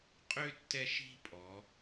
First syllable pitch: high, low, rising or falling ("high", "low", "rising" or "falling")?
high